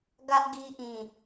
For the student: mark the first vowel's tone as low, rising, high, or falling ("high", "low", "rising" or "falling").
high